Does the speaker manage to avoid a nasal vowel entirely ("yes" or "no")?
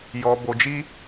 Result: yes